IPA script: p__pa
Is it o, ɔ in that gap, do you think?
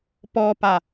ɔ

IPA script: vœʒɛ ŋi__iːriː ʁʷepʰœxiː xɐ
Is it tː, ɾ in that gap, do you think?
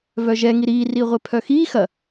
ɾ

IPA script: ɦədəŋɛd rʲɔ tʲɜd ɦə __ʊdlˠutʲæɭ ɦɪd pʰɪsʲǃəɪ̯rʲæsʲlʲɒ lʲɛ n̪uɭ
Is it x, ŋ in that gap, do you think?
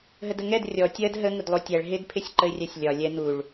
ŋ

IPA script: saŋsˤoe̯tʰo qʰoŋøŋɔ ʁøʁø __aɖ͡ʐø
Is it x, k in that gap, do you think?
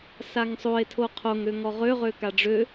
k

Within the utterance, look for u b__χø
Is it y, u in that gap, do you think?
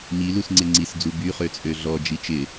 y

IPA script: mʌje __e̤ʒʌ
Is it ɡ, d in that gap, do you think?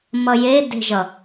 d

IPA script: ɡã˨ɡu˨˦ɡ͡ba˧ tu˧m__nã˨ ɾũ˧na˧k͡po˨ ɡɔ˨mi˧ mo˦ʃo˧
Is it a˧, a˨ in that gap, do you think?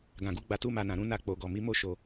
a˨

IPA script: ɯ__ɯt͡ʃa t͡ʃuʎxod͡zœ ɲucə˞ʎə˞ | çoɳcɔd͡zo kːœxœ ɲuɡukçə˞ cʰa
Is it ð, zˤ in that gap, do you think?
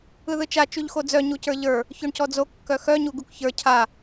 ð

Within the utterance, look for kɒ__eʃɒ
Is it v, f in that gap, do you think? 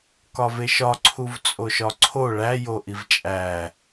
v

